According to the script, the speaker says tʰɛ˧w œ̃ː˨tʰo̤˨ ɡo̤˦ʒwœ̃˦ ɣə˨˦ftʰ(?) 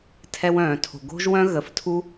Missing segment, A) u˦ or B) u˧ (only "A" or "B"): A